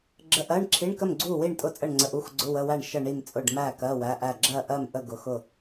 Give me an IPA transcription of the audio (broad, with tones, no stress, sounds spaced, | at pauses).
ɡ͡ǁ ə˧˥˧ ʔ ɜ˧˥˧ ɳ ǁʰ i˧˥˧ ɳ k ə˥˨ m ɡ͡ǀ u˥˨ w i˥˨ ɳ tʼ ʊ˥˨ t͡sʼ ə˥˨ ɳ ŋ͡ǀ ə˧˥˧ ʔ u˧˥˧ x ɡ͡ǀ ʊ˧˥˧ w ə˧˥˧ w æ˥˨ ɳ ʃ ə˥˨ ɳ i˥˨ m t͡sʼ ʊ˥˨ ɖ m æ˥˨ k ɜ˧˥˧ w æ˧˥˧ ʔ æ˥˨ ɡ͡ǁ ɜ˥˨ ʔ ɜ˥˨ m ʔ ə˥˨ ɡ ʊ˧˥˧ x ʊ˥˨